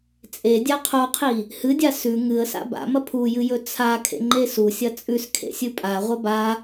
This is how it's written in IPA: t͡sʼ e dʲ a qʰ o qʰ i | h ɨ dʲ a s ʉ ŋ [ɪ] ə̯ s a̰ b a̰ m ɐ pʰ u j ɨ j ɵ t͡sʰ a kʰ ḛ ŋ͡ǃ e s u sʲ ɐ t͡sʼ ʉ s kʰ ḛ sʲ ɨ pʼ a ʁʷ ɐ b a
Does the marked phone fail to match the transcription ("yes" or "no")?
yes